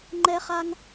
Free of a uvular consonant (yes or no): no